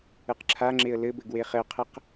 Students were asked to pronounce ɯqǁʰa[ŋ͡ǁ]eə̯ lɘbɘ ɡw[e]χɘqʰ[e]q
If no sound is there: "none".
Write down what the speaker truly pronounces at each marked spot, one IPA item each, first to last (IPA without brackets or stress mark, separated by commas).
ŋ͡ǁ, e, ɘ